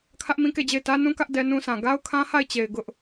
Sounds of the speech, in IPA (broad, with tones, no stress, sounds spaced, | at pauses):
kʰ ä˦ ʔ m ĩ˦ k e˦˨ d͡ʑ e˦˨ ɪ̯ t ä˦ n ũ˦ k ä˦ ʔ d ɛ˦ n ũ˦ s ã˨ ɡ a˦ ʊ̯ kʰ ã˦ h a˦˨ ɪ̯ t͡ɕ e˨ ɪ̯ ɡ ʊ˦ ʔ